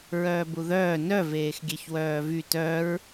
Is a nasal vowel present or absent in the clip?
absent